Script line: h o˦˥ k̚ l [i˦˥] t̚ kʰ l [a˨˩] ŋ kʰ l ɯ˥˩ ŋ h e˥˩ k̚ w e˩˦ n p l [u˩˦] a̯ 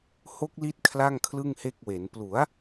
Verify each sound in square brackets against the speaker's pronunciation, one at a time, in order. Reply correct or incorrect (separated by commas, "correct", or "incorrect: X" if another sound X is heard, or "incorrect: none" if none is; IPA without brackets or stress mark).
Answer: correct, incorrect: a˥˩, correct